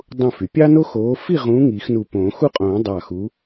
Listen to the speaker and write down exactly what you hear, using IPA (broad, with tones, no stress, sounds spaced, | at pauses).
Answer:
dˤ ũ˧˩ f y˩ pʲ ɑ˦ n o˦ x oː˨˦ f i˥˨ ʁ ũː˨˦ ŋ i˨˩˦ x n u˧˩ p õː˨˩˦ x u˦ qʼ õː˨˩˦ dˤ ɑ˧˩ x u˨˦